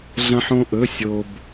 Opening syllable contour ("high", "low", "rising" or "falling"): high